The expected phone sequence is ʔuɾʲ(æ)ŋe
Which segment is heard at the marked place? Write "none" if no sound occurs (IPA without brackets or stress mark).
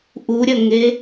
ɐ